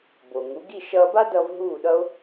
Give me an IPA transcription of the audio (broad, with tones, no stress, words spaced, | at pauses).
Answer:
bo˩ŋu˩˥ ɡi˥˩ ʃʌː˧ba˥dʌː˧v ɦuː˥˩ɗʌ˥o̯